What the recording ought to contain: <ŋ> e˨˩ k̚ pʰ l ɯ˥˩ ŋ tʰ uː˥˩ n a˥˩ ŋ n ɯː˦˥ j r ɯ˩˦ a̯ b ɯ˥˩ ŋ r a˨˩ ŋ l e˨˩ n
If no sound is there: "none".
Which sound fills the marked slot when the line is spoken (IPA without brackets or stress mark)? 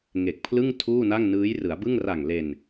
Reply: ŋ